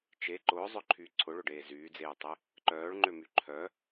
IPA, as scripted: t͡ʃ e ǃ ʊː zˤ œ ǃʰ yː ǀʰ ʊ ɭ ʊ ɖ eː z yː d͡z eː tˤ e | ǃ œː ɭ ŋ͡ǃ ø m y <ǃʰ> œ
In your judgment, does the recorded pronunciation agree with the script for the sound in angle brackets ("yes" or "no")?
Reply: yes